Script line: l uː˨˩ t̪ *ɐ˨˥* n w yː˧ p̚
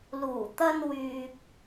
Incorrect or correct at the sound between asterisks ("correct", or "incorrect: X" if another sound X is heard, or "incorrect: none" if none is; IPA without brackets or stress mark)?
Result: incorrect: ɐ˧